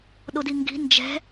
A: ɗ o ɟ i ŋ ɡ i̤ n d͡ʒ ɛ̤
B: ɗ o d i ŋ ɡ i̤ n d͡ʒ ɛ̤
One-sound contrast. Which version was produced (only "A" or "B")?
B